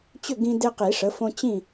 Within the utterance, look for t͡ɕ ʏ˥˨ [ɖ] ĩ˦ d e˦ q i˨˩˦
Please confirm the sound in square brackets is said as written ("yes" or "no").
no